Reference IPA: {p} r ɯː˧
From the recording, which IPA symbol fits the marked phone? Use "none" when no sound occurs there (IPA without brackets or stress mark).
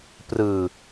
p